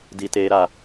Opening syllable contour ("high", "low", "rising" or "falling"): high